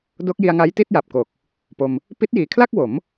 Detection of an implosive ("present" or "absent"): absent